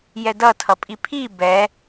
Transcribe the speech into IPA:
jɛdʌtʰʌ pʼipʰi bɛ

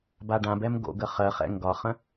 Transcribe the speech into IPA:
baɖãbɛm ɡo̰ɡə χɜχɛ̰ ŋɡɒχə̃

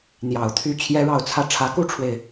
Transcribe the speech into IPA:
n̪jɑ˨˩ʊ̯t̪ʰy˥˩ t͡ɕʰjɛ˥ɻɑ˥˧ʊ̯t͡sʰä˥˩ ʈ͡ʂʰä˧˥ku˥ʈ͡ʂʰwe˨ɪ̯

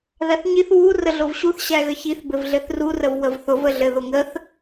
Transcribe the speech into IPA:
ðæθɲiθ wu rəɮovɕuθ ɕæɣəçiθ bɘvɮɘθru rəvwəvθʊv əɮɘðʊŋəθ

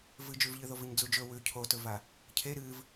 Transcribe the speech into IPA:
vɨd͡ʒʉvʎɨðov ɨɲd͡zud͡ʒɵ wʉ cʰotɵva | cʰe ɾɨːv

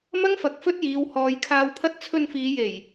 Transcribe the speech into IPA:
mɐ˥ŋfɐ˨˥k̚ fɵ˥t̚jiː˨˧w hɔː˨˧jkʰaː˧wpʰɐ˥t̚ t͡sʰɵ˧n fiː˨˧je˨˩j

